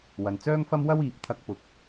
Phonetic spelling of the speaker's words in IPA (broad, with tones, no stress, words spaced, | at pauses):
wɐ˨nt͡sœː˥ŋfɐ˥m wɐ˥wiː˨p̚ t̪ʰɐ˧k̚pʊ˨k̚